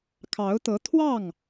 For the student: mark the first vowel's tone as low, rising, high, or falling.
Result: rising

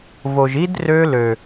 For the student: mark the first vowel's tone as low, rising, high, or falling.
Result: low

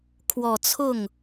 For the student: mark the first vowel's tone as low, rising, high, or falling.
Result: low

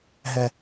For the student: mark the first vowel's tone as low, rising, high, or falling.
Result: low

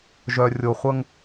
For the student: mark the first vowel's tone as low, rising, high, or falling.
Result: low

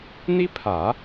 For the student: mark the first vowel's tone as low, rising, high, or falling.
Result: high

